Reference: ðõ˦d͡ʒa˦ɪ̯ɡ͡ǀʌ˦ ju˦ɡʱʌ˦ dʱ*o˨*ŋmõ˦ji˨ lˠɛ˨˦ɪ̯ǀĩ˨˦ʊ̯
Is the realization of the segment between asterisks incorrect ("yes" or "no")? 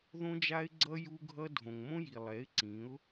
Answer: yes